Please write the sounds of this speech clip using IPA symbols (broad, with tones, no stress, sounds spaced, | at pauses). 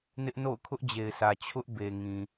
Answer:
n ɪ˦ ʔ n o̰˦˨ ʊ̯ kʰ ʊ˦ ʔ d͡ʑ e˨ ɪ̯ sʰ ä˨ t͡ɕʰ ʊ˦ ʔ b e˨ ŋ ĩ˨